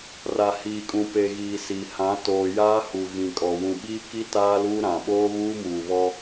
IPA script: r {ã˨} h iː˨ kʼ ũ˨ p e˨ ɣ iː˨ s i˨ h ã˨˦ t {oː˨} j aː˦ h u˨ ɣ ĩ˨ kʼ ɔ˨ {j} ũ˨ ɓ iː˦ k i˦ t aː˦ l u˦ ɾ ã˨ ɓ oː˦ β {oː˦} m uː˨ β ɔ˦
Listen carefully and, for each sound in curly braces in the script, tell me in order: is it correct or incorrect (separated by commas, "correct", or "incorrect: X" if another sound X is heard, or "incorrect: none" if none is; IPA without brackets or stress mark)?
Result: incorrect: a˨, correct, incorrect: w, incorrect: uː˦